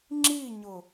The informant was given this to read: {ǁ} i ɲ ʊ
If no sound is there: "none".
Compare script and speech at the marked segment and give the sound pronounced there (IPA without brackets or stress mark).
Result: ŋ͡ǁ